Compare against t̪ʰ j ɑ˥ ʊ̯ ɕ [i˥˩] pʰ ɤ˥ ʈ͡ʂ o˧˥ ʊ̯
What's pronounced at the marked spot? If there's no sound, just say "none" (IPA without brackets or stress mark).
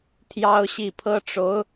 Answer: i˥˩